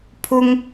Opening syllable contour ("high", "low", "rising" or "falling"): high